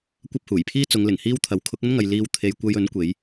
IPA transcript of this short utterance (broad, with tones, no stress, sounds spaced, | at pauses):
kʷ ɐ˥ p̚ h uː˨˩ j pʰ iː˥ t͡s ʊ˨˧ ŋ l ɪ˨˩ ŋ h iː˥ w t̪ʰ ɐ˨˥ w kʰ ʊ˨˥ k̚ ɐ˥ n ŋ ɐ˨ j l iː˨˧ w t̪ʰ e˨ j kʷ ɐ˧ j ɵ˨˥ n kʷ e˨˥ j